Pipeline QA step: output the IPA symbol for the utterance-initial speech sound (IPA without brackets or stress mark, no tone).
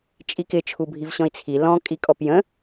t͡ʃʼ